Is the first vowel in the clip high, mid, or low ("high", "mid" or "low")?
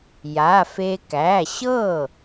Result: low